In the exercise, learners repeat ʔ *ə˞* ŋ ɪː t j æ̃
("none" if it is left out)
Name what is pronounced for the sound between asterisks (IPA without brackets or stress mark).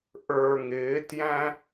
ə˞